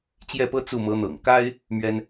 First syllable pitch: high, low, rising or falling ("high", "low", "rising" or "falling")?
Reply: falling